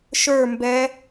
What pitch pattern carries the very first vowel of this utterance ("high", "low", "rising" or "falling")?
falling